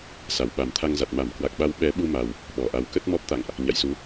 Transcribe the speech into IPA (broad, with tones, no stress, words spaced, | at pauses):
sa˧˩wɓa˨˩mt̪ʰa˧ŋza˨˩t̚ ma˧˩mkwa˨˩k̚ɓa˨˦w ɓɛ˨˦ɓu˧ma˨˩w | ɓɔ˧˩ʔa˨˦w kə˦˥t̚mɔ˦˥p̚t̪a̰˧˨ŋʔ | ɲa̰˧˨jsu˨˦